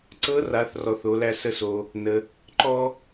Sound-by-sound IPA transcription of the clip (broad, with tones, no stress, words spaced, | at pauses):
ǀɤ˧˥ra˩˧θ rɔ˩˧θo˩˧læ˧ sə˧so˩ | nə˩ | ǃɔ˥